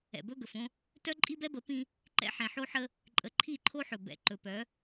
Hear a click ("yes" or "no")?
yes